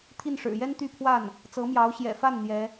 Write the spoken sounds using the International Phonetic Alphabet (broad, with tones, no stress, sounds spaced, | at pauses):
t̪ʰ i˥˩ n ʂ ɻ̩˨˩ j ɛ˥ n t̪ y˥˧ pʰ w a˥˩ n | t͡s ɤ˧˥ m j ɑ˧˥ ʊ̯ ɕ j ɛ̰˨˩ f a˥˩ n n̪ j ɛ˧˥